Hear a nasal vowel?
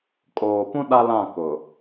yes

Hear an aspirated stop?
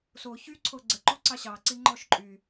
yes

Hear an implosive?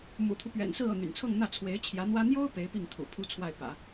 no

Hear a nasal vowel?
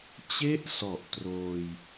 no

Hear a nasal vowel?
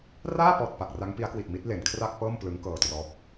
no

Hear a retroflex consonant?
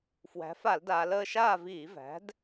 no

